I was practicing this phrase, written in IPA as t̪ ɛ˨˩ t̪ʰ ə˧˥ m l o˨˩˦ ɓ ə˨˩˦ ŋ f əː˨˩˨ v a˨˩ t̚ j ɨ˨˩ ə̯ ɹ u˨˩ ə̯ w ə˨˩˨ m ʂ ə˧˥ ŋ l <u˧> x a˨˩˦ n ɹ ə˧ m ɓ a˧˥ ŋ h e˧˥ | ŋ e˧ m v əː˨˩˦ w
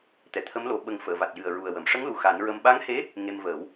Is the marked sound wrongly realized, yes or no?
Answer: yes